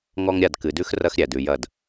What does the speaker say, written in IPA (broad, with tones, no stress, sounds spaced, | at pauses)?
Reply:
ŋ ɔ˦ ŋ ɾʲ a˦˨ d k ɨ˨ d ʉ˦ x r ɐ˦ x ɾʲ æ˨ d ʉ˨ j ɐ˦˨ d